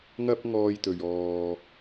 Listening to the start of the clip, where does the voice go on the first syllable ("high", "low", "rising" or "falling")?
high